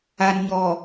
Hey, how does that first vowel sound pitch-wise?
low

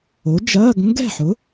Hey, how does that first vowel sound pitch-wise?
rising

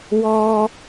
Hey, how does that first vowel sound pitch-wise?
high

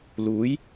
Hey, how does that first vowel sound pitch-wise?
rising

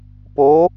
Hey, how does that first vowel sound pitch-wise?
rising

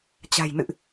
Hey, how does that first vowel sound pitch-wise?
low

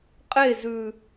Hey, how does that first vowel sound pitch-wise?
falling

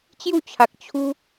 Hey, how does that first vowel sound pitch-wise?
falling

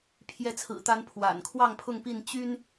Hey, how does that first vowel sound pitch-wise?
rising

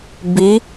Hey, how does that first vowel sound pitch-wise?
rising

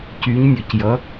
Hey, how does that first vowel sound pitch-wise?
rising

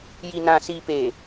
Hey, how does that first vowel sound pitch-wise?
low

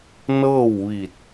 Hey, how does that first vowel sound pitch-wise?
falling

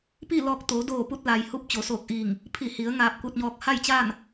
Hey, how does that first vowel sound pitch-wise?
falling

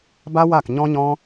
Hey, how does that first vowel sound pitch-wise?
high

